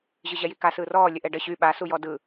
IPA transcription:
ʑ ɯ ʑ ɛ j i k a s ɯː r ɔː lʲ ə ʔ ɛ ɖ ə ɕ y ɓ a s u j ɔ d ɯ

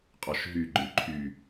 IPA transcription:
qʼ ɔ ʃ ɦ y ɡ͡ǃ ɨ ǃʰ y

